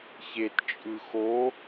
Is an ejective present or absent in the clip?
present